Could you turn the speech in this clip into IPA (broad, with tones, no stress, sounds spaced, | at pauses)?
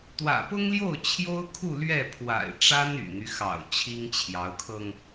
t̪ w ä̰˨˩ p ʊ˥ ŋ l j o˥˩ ʊ̯ t͡ɕʰ j o˥ ʊ̯ kʰ u˥˧ l ɥ ɛ˥˩ pʰ w a̰˨˩ ɪ̯ ʈ͡ʂ a˥ n y̰˨˩ n̪ y˦ x ɑ̰˨˩ ʊ̯ t͡ɕʰ i˥ ŋ t͡ɕʰ j ɑ˧˥ ʊ̯ kʰ ɤ˧ ŋ